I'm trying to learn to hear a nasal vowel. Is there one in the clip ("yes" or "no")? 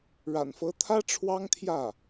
no